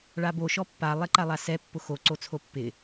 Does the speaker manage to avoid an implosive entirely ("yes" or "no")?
yes